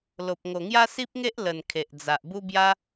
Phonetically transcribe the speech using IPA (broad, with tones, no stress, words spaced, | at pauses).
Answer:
lo˨p̚ ŋo˨˩ŋja˦si˦p̚ŋe˦ʔ lə˨˩n kʰe˨ʔd͡za˨ʔ bu˦bja˦